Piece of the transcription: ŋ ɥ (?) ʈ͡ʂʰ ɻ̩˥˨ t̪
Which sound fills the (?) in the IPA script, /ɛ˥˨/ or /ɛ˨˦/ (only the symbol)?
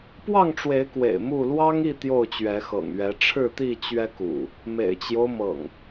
ɛ˨˦